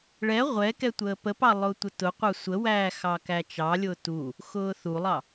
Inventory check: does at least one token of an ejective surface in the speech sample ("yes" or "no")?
no